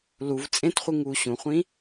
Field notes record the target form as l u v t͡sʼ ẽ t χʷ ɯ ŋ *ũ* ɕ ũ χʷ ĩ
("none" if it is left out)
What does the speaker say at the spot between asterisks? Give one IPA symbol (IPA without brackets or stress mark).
u